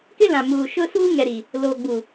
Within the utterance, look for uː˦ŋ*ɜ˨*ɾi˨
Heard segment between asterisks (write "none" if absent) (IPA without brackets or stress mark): ɛ˨